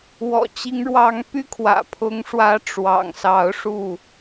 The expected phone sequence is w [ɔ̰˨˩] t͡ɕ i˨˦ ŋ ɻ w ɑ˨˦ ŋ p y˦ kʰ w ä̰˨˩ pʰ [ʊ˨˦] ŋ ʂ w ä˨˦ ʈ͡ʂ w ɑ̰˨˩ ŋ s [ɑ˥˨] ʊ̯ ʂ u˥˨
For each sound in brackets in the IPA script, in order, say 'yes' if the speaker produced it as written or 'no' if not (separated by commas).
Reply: yes, yes, no